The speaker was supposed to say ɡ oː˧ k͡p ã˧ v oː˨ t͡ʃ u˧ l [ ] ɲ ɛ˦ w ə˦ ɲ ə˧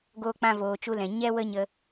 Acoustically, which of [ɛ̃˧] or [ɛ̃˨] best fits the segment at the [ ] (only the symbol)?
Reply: ɛ̃˨